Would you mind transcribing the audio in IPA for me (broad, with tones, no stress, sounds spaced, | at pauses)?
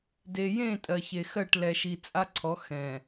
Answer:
d e˨ j ẽ˦˨ tʼ ɜ˨ ç e˨ x ɜ˦˨ ʈ l ɛ˨ ʃ i˨ t͡sʼ a˦ ǀʰ ɔ˨˦ x ɛ̃˨